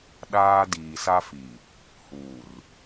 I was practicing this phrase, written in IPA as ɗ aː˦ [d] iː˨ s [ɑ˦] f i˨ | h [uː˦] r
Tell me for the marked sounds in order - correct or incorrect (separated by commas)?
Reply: correct, incorrect, incorrect